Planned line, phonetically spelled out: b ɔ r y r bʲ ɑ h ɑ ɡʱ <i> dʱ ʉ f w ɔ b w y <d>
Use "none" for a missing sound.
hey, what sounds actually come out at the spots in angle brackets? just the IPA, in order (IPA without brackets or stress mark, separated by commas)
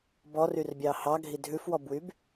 i, b